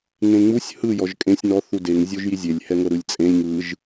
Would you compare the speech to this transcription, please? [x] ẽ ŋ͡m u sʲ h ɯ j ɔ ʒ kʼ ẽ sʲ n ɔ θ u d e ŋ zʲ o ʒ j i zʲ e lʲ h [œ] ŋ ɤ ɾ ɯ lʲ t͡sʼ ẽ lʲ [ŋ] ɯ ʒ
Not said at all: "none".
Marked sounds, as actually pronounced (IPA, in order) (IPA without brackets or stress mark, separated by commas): ŋ, ɛ, ŋ